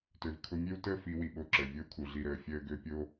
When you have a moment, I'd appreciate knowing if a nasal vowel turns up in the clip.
no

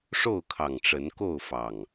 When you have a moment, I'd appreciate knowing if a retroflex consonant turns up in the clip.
yes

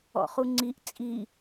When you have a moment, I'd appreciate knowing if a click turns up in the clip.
yes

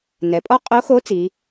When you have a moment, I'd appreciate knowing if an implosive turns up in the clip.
no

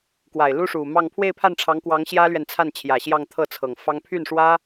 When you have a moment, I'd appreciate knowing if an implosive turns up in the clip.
no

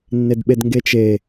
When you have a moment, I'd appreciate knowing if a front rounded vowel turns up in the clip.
no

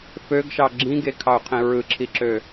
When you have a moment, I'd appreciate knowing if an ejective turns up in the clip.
no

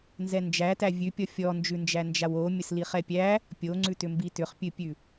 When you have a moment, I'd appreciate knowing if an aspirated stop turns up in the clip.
no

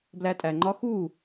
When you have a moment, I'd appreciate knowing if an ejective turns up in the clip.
yes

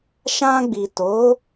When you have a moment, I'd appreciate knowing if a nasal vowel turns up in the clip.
yes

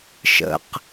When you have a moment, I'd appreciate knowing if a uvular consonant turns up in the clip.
yes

